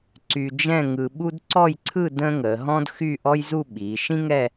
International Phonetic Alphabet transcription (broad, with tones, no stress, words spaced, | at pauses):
ǀy˧d͡ʒɛ̃˥˧ ŋɯ˧ ɓu˥d ǀɔ˥˧jǀʰɯ˥˧ də̃ː˥ŋəː˩˧ ɦɔ̃˥dxy˥˧ʔɔ˥jzu˥˧ ɓi˩˧ ʃĩ˥ŋɛ˥˧